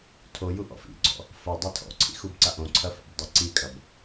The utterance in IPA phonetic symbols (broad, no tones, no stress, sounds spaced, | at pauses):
tʰ o j u ʔ ɔ̰ f ḭ ɡ͡ǀ ɔ̰ | f ɐ dˤ e tʰ ɔ̰ ǀʰ ḭ x u b ǀ a ʔ õ ǀʰ ɐ f a̰ b dˤ ɨ ǀ i kʼ ɐ b